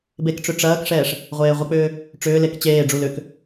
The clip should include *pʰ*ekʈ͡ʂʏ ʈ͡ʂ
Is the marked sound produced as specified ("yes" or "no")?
no